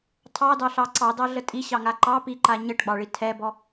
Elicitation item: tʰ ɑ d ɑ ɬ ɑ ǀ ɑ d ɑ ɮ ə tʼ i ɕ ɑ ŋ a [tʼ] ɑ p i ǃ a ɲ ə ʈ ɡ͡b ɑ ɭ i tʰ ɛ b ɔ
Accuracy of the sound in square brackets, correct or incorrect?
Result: incorrect